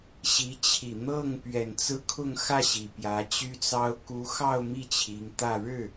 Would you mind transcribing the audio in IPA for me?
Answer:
ɕ i˧˥ t͡ɕʰ i˨˩ n̪ ɤ˥˩ ŋ p ɥ ɛ˨˩ n t͡s ɹ̩˥ kʰ ʊ˥˧ ŋ x ä˥˩ ɕ i˨˩ p j ä˧˥ t͡ɕ y˥ t͡s ɑ˥ ʊ̯ k u˧˥ x ɑ˥˧ ʊ̯ m i˥˩ t͡ɕʰ i˧˥ ŋ t̪ ä˥˧ ɻ ɻ̩˥˩

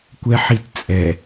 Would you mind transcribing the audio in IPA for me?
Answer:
kʷ ɛ ħ i t t͡sʼ ɛ

